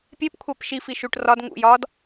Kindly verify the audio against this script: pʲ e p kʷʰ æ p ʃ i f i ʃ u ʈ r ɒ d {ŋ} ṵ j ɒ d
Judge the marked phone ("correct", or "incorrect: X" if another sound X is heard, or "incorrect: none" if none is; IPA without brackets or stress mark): correct